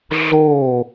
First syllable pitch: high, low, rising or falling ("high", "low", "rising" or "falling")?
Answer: falling